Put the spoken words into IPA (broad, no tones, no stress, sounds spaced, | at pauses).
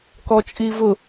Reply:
k ɔ t͡ʃʼ i v ʊ